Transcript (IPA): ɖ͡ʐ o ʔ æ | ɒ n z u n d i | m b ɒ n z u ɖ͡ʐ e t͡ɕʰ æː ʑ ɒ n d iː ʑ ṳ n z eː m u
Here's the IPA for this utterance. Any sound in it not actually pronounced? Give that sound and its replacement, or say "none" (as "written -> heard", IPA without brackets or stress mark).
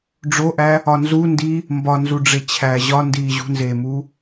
none